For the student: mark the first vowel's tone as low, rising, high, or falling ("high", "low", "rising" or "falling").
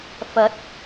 rising